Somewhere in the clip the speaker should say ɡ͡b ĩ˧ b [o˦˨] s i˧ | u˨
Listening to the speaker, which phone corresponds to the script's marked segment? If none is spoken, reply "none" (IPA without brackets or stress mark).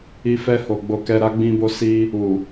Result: o˧